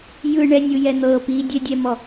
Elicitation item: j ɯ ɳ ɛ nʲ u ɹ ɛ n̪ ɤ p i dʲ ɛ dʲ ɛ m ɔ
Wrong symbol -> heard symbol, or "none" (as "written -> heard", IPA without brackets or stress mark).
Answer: ɹ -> j